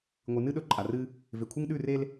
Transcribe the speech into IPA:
ŋʷ ɨ˨ n ɨ˦ ɗ ɵ˦ ǃʼ a˨ r ɨ˦ | v e˨ kʷʰ e˦ ŋ ɗ ʉ˦˨ r e˦ l

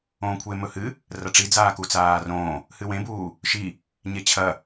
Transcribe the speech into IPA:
õː kʷʰ e m ɵ h ɨ | r ɐ ʈ͡ʂ i d͡z aː k u t͡s aː r õː | h ɨ w ẽ b uː | ʃ i | ɲ e t͡ɕʰ ɐ

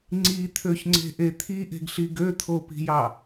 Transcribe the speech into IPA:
ŋ͡ǀ i t̪ʰ ø ç ŋ͡ǀ e̤ ʔ e t̪ʰ i ʔ e̤ ɡ ɬ i ɡ ø t̪ʰ o p i̤ j ɑ

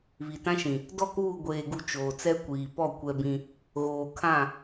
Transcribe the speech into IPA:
β i˨ t ã˦ ʃ ĩ˨ | d ɔ˦˨ k uː˦˨ ɡʷ eː˨ ɡ u˨ t͡ʃ oː˨ t͡s ɛ˦ kʷ iː˨ p ɔ˦˨ kʷ ɛ˦ b ĩ˦ | ɣ oː˨ kʰ ã˦˨

